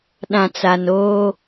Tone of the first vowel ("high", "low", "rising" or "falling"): low